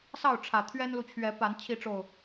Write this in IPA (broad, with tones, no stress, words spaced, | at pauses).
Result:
sɑ˥˨ʊ̯ʈ͡ʂʰä˨˩ t̪ʰɥɛ˦nlu˨ t͡ɕʰɥɛ˨˦pa˨˦n t͡ɕʰi˨˦ʈ͡ʂo˨˩ʊ̯